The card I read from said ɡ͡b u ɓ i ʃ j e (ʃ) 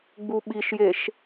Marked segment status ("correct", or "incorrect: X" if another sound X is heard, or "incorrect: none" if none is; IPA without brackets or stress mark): correct